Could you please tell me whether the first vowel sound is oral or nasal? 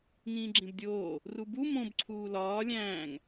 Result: nasal